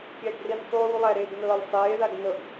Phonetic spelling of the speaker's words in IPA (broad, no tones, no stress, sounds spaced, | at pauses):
kʲ æ ɡ r i n sˤ uː lˠ æ ɾ eː ɡ n ɤː lʲ sˤ eː ð a ɡ n ɤ ɡ